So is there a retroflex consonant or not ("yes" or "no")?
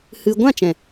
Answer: no